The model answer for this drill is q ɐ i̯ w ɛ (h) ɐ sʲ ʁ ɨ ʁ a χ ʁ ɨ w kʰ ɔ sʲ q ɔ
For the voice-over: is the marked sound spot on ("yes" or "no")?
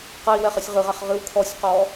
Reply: no